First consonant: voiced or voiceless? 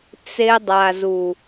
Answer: voiceless